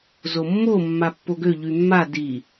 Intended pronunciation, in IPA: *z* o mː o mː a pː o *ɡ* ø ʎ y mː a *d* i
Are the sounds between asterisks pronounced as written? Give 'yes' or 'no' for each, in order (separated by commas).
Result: yes, yes, yes